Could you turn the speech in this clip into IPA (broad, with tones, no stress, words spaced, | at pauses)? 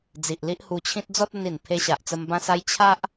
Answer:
d͡zi˨ʔli˦ʔhu˧t͡ɕʰĩ˦t̚ d͡zɔ˦t̚ə˧ni˨˩n pʰe˧ɕa˨ʔt͡sə˧m bã˧sa˧j t͡ɕʰa˦ʔ